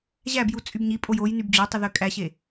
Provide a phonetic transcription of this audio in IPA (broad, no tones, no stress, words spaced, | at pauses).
ʑæbju t͡sʼybɲipʼoj oj nybd͡ʑotˤy ðøkʼæɕe